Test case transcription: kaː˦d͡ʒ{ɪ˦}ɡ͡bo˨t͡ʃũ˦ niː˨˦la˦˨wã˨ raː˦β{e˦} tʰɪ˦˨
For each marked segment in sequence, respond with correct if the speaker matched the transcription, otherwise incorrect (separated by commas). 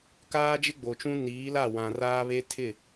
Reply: correct, correct